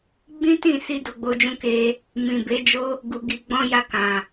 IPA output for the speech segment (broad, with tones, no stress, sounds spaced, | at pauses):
ɡ͡b ĩ˦ t ĩ˦˨ s i˧ d o˧ ɡ͡b o˧ d͡ʒ ũ˦ k e˦ | m ĩ˨ b e˨˦ d͡ʒ o˦ | ɡ u˧ ɡ i˧ ɡ͡b ɔ̃˧ j a˧ k ã˨